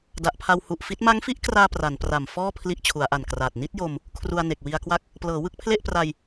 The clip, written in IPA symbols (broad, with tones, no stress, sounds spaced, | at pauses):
d a˨˩ ʔ pʰ a˧ w h u˨˩ ʔ f i˦˥ t̚ m a˦˥ ŋ f i˦˥ ʔ k r aː˧ p r a˩˦ n p r a˨˩ m f ɔː˥˩ pʰ l i˦˥ ʔ t͡ɕʰ u˩˦ a̯ ʔ a˨˩ n k r aː˨˩ t̚ n i˦˥ t̚ j o˧ m | kʰ r u˧ a̯ n e˨˩ k̚ w i˧ a̯ k w a˥˩ k̚ | p l ɤː˩˦ w ɯ˥˩ k̚ pʰ l e˥˩ ʔ p r a˧ j